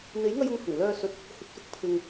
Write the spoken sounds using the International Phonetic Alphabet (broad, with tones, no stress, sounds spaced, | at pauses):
n̪ e˨˥ j ŋ ɐ˧ j ʊ˨˧ ŋ h ʊ˨˩ ŋ l œː˧ s ɵ˨˥ t̚ | h ɪ˨˥ k̚ s ʊ˨ k̚ pʰ ɪ˨ ŋ